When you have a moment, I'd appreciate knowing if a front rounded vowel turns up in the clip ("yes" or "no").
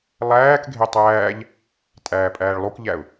no